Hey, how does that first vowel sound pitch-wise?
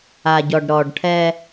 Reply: low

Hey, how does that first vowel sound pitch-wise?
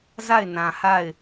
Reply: falling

